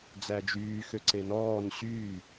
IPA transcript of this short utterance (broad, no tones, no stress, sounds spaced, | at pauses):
d͡z æ d͡ʒ yː x ø ǀ e n ɔː n ɕ yː